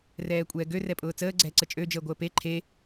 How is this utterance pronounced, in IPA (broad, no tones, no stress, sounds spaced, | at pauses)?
r ɛː kʷʼ ɛː ɡ ø r ɛ pʼ ʊː t͡s əː ɡ͡ǀ ɛː ǀ ə t͡ʃʼ ø d͡ʒ əː ɡʷ əː p e ǃʰ e